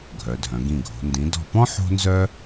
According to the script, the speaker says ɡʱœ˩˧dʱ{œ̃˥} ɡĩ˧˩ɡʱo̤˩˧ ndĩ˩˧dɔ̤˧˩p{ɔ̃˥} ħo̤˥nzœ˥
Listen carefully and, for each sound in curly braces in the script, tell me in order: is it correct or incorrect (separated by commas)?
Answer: incorrect, correct